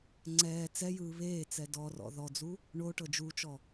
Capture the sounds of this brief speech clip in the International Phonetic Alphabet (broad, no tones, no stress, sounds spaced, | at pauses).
ŋ͡ǀ ɛː t͡s ɛ j ɯː β eː t͡s ɛ d ɔ r ɔ̰ ð ɔ d͡z u | ɳ o ʈ ɤ d͡ʒ u t͡ʃ ɔ